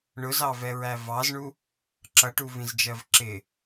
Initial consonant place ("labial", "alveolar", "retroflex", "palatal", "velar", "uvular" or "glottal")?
retroflex